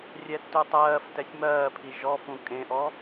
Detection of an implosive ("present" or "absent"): absent